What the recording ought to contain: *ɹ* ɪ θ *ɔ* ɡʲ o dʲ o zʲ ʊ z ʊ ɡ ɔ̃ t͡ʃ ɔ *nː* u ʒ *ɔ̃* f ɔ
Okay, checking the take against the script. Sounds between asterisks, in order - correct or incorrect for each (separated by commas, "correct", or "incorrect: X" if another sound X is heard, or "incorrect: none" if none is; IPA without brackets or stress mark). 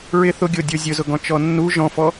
correct, incorrect: ʊ, correct, correct